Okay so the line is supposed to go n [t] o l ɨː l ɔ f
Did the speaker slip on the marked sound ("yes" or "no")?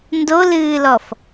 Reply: yes